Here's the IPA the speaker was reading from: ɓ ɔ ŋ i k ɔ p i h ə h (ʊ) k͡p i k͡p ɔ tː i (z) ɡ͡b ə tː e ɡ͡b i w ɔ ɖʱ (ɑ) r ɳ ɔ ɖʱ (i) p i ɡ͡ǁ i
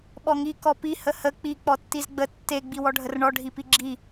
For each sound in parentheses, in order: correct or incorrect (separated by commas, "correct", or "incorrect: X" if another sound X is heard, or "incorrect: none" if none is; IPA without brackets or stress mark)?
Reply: incorrect: ə, correct, incorrect: ə, correct